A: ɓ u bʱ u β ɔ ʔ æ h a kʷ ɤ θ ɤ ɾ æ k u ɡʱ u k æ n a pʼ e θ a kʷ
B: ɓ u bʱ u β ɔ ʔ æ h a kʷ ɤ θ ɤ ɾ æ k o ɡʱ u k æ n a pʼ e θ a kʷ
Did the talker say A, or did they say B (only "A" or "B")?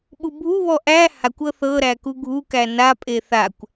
A